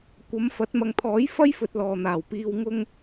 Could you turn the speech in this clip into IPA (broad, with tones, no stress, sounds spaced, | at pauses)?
kʷ ɐ˨˥ m f ɐ˨˥ t̚ m ɐ˨ ŋ t̪ʰ ɔː˨˥ j f ɐ˥ j f ɵ˨ t̚ l ɔː˨ n̪ aː˨˩ w p iː˧ w ŋ ʊ˧ ŋ